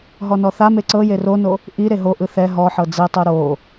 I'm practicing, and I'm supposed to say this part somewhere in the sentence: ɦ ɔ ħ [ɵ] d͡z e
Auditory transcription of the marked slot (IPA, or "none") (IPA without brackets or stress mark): ɤ